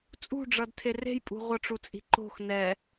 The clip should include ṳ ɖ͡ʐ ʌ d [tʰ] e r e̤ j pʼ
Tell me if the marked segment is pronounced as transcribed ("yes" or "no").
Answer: yes